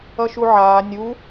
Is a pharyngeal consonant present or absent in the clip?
present